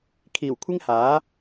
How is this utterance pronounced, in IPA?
kʰ iː˨˩ w kʷʰ ɪ˥ ŋ h aː˨˥

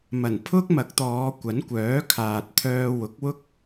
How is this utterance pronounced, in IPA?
m ɐ˨˩ n pʰ ʊ˥ k̚ m ɐ˨˥ k̚ t̪ ɔː˨˧ kʷ ɐ˨˥ n kʷ œː˨˥ kʰ aː˨ t̚ t̪ʰ œː˧ w ʊ˨˥ k̚ w ʊ˥ k̚

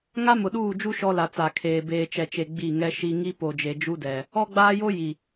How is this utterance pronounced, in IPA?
ŋ a˦ m ʊ˨ ɗ uː˦˨ d͡ʒ u˦ ʃ ɔ˦ l a˨ t͡s a˨ kʰ eː˨ b eː˨ t͡ʃ ɛ˨ t͡ʃ e˨ ɡ͡b i˦˨ ŋ ɛ˦ ʃ i˦ ŋ i˦ p o˨ d͡ʒ e˨ d͡ʒ u˦ d ɛ˨ | ɔ˦ ɡ͡b aː˦ j o˦ j i˨

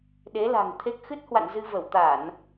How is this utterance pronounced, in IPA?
ɗ e˨˦ l a̤˨˩ ŋ t̪ʰ e˦˥ k̚ x ɨ˦˥ t̚ h w a̰˧˨ n z ɨ˧ v ə˧˩ w t̪ a˧˩˨ n

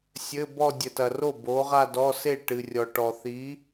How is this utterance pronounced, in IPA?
sʲ ɘ˧˥˧ b ɔ˥˧ dʲ ɘ˨ t ɐ˨ r o˥˩ b o˨˥ ʁ a˥˧ d ɔ˧˥˧ s e˥˩ ʈ ɨ˨ rʲ ɔ˨ ʈ ɔ˨ θ i˨˥

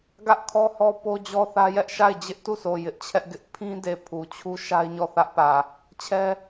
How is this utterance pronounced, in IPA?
ɡ ä˦ ʔ kʰ ɔ˦ h ɔ˦ p o˦ d͡ʑ ɔ˦ θ ä˦ j ɛ˦ ʔ ʃ a˦˨ ɪ̯ d͡ʑ ɪ˦ ʔ t u˦˨ s o˨ j ɪ˦ ʔ t͡ɕʰ ɛ˦ ʔ ɡ ɪ˦ ʔ pʰ ĩ˦ d e˨ pʰ u˨ t͡ɕʰ u˦ ʃ a˦ ɪ̯ ɲ ɔ˦˨ θ ä˦ ʔ p ä˨ | t͡ɕʰ ɛ˦

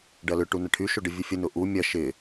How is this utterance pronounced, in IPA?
ɖ ɐ l ʏ ʈ u n ɐ ʈʰ y ʃ o ɖ ə vʲ u fʲ ə n ʊ ʔ u mʲ ɐ ʃ ɪ

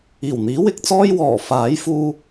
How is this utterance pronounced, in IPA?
iː˨˩ w n̪ iː˨˥ w ɪ˨˥ k̚ t͡s ɔː˥ j w ɔː˨˩ f aː˨˥ j f uː˧

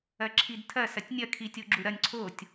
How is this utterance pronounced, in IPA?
ɐ ǁʰ i d tʰ ɐ s ɐ tʲ nʲ ɐ kʰ i tʲ o ɡ͡ǁ u ɾ ɐ nʲ ǀʰ o tʲ

